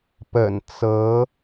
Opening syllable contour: low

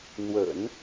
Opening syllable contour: low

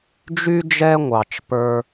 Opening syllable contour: high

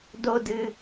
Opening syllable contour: high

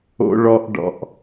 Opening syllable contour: high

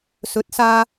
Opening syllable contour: rising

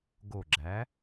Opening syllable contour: low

